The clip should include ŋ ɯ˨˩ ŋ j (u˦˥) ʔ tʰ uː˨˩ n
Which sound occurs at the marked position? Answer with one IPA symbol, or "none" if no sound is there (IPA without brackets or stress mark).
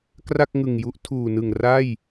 u˦˥